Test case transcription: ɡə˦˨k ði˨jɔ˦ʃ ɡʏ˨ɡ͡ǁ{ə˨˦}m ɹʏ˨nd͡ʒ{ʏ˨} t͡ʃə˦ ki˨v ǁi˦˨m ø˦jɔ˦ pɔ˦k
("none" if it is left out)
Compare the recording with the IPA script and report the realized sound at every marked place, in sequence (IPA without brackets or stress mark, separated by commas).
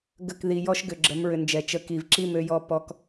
ə˨˦, ɛ˨